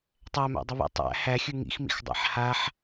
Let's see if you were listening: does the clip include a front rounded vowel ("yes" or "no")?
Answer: no